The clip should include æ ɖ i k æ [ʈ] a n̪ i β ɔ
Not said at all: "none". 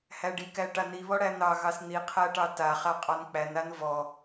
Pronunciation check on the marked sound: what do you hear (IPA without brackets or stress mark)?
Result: ʈ